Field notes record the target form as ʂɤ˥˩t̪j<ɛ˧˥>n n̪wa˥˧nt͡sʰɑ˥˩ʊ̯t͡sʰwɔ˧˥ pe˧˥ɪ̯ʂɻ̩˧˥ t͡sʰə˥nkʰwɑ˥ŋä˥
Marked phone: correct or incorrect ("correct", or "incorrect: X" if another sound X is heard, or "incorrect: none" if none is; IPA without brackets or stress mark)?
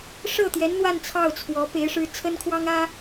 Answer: correct